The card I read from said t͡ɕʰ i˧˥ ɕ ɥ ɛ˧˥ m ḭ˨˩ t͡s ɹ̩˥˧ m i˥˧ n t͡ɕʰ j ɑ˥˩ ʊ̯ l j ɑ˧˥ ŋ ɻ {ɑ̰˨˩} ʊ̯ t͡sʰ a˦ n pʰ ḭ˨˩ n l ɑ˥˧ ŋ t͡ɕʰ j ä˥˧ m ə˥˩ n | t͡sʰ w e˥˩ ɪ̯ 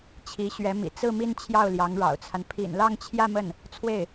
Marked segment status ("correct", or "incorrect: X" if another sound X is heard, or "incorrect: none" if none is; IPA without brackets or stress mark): correct